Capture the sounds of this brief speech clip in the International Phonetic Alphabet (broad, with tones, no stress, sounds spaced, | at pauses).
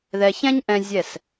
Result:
ð ɛ˧ ç ɛ̃˥ ɲ ʔ ɛ̃˥ zʲ ɛ˥˩ s